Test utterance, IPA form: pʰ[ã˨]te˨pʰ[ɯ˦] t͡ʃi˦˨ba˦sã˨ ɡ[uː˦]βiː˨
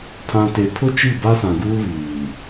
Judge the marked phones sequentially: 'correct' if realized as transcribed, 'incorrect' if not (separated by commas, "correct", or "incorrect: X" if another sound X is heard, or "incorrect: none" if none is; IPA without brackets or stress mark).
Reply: correct, incorrect: ʊ˦, correct